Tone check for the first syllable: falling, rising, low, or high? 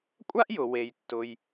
high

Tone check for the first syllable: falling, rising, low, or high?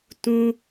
high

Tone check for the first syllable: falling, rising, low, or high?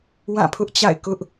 falling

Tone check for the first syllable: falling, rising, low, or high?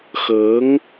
rising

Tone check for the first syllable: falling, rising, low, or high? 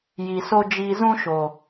low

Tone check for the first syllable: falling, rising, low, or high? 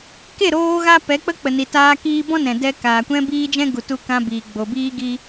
falling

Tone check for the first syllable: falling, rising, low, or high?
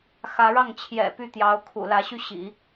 rising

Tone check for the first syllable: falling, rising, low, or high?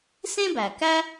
high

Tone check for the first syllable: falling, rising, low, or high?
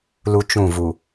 high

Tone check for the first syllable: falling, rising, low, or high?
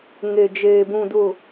low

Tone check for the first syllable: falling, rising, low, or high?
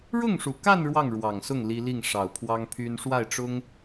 falling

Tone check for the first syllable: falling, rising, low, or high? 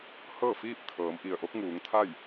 falling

